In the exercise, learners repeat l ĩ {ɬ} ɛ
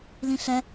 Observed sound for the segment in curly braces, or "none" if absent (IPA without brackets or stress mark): ɬ